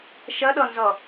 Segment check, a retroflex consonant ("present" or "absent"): absent